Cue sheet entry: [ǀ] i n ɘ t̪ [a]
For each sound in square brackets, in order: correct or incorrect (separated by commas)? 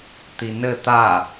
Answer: incorrect, correct